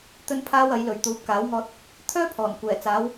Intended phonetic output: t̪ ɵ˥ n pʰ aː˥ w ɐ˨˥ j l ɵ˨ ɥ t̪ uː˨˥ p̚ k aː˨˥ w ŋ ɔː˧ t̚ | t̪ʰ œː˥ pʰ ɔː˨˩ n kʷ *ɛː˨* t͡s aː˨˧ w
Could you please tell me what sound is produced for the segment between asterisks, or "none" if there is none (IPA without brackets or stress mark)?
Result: ɛː˨˩